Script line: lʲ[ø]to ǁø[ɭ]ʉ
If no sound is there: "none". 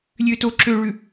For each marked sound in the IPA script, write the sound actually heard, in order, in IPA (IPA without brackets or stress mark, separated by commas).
ø, ɭ